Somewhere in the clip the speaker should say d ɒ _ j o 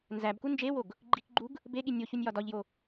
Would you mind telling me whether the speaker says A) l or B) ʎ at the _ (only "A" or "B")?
B